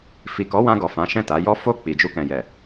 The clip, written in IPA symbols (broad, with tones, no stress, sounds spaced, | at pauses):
f i˨ k ɔ˨˦ w ã˧ ɡ ɔ˨ f ã˨˦ ʃ ɛ̃˦˨ t a˨˦ j ɔ˦ f o˦˨ k͡p i˨ d͡ʒ u˧ k ɛ̃˨ j ɛ˨